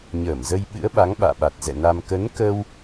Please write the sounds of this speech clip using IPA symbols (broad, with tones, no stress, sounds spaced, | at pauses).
ɲ əː˧˩ m z ə˧ j ɓ ɨ̰˧˥ ə̯ ɓ a˨˦ ŋ ɓ a̰ː˧˨ ɓ a˨˩ t̚ z ɛ̰˧˨ n a˧ m k ə˨˦ n k ə˧ w